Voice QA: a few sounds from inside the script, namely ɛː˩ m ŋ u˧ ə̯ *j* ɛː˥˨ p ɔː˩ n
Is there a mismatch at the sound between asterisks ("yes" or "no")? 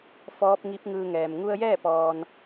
no